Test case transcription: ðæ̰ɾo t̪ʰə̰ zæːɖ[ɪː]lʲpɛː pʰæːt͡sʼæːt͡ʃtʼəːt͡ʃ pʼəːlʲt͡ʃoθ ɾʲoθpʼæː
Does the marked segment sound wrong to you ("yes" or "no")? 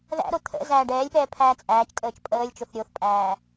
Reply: yes